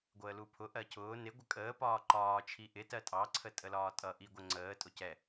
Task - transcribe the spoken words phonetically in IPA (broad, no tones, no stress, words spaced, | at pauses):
ɡʷəːlupʰʊ ʔɜcʰʊː nɪ ɡʷəkʼəː pɒːǃɒː t͡ʃʰiʔɪ tɜtʼɑ ǀʰətʼəlɒːtʼʌ ʔiɡʷəŋ͡ǀəː tʼʊcɛ